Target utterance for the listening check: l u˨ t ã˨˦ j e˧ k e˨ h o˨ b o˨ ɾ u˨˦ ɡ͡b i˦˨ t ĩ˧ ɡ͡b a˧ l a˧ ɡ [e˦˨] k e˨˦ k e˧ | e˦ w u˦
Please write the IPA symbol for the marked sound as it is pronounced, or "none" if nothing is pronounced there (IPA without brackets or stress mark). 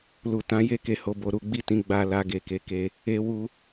e˨